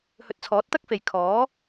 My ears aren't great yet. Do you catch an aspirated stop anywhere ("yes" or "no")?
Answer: yes